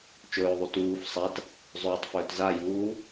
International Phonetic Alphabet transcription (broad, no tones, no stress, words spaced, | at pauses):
t͡ʃɵːðˤu tuːf sˤat | zˤɵːtˤfɵːt zajuː